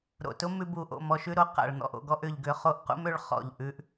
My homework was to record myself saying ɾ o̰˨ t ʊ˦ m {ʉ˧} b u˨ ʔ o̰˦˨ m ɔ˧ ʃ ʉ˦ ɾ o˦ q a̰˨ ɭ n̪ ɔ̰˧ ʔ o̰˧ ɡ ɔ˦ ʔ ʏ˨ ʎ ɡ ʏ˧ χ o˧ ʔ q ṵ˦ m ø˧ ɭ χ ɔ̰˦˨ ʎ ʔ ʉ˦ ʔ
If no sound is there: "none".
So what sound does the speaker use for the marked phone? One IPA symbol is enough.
ʉ˧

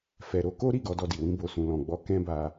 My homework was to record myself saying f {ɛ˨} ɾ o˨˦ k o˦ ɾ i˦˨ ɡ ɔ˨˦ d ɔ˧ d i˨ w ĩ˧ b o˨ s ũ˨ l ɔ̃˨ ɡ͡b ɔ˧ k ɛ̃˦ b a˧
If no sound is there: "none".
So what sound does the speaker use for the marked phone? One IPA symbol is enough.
ɛ˨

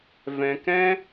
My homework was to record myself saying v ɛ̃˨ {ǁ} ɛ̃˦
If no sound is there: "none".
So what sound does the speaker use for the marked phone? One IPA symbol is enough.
k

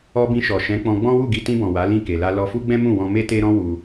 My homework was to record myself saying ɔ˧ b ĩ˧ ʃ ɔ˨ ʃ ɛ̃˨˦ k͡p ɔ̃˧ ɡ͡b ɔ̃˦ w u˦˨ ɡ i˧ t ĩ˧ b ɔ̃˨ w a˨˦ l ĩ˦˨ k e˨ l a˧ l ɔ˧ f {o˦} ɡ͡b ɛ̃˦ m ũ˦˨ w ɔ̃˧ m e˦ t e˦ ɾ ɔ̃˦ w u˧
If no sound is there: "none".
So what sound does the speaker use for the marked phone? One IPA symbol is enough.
u˦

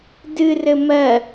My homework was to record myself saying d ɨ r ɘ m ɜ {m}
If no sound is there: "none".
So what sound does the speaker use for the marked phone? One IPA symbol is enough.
none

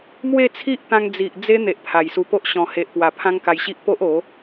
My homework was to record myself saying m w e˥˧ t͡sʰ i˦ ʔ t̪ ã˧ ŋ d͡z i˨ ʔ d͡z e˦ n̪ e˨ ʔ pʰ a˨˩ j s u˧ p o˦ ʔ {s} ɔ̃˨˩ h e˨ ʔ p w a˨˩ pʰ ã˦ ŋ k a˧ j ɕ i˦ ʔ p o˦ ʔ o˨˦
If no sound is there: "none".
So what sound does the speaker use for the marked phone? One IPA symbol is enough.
ɕ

